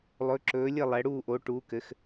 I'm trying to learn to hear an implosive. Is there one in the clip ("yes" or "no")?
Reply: no